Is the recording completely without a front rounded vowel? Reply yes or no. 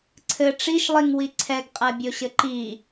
yes